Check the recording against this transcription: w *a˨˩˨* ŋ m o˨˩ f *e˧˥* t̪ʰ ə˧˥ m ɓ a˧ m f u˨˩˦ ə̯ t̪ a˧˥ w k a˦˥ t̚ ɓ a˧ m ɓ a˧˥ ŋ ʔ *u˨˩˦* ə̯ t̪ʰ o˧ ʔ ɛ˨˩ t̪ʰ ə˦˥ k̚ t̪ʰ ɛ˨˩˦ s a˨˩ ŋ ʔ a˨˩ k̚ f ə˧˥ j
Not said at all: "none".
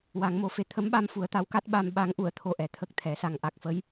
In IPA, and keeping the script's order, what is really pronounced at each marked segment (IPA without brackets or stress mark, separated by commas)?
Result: a˨˩˦, e˧, u˨˩˨